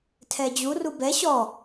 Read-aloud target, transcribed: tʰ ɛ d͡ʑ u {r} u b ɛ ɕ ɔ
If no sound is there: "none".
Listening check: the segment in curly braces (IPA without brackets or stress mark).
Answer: r